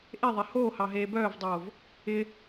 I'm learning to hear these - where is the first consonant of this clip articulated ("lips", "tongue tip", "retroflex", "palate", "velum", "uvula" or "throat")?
throat